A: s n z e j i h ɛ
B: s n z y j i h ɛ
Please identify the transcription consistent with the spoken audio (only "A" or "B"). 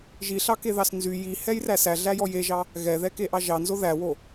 B